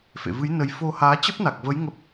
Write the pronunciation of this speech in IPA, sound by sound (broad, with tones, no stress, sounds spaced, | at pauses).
f ḛ˧˨ v ɨ˨˦ j n ə˧ j f o˧ h aː˨˦ t͡ɕ ə˦˥ p̚ n a˨˩ k̚ v ə˨˦ j ŋ ə˦˥ p̚